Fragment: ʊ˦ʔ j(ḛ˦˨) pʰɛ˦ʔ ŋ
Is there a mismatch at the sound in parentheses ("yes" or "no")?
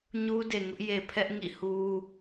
yes